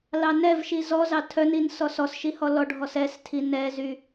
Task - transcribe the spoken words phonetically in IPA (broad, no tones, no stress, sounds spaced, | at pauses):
l ɑ n ɛ v ʃ i z ɔ z ɑ tʰ œ n i n s ɔ s ɔ s ʃ i h ɔ l ɔ ɖʱ ɔ s ɛ s tʰ i n ɛ z y